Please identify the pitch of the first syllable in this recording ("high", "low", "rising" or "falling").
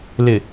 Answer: low